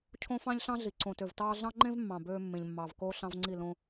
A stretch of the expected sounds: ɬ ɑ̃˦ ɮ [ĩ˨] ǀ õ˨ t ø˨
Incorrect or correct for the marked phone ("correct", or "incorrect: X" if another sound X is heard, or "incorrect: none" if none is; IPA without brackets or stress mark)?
incorrect: i˨